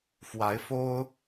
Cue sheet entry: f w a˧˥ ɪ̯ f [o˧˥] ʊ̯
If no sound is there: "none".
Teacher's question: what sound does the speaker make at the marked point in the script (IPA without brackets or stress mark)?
o˥